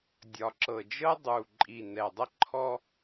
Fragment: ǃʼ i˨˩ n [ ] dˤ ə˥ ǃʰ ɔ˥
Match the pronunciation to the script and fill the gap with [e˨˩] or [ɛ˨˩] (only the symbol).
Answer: ɛ˨˩